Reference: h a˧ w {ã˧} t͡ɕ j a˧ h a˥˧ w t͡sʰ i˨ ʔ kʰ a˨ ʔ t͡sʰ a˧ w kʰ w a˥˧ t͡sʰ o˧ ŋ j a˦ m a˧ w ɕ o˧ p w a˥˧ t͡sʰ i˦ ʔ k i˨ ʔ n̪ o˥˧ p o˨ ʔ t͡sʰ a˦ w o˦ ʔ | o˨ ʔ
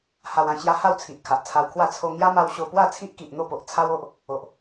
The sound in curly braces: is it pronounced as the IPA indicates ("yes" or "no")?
yes